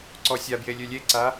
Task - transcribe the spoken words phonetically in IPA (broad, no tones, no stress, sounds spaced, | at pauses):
ǀ ɔ sʲ a b j e lʲ ø lʲ e ǀ a